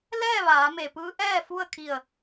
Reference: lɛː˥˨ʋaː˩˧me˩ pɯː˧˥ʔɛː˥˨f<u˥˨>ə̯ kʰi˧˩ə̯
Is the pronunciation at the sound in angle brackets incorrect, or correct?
correct